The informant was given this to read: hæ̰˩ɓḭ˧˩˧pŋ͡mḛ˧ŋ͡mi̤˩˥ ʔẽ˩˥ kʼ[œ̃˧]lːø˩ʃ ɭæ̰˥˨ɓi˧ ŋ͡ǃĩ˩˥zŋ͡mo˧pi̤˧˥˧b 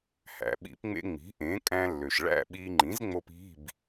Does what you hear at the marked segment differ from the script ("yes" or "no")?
yes